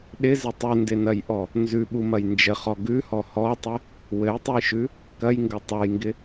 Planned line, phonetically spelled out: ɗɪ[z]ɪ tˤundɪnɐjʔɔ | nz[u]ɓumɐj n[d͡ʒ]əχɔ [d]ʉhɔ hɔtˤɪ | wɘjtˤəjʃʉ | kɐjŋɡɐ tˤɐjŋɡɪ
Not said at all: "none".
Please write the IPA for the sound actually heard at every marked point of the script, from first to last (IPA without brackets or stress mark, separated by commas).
z, ʉ, d͡ʒ, ɡ